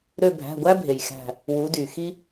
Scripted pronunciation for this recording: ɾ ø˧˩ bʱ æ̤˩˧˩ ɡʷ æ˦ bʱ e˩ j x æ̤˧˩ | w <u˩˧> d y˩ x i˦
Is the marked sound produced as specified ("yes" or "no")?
yes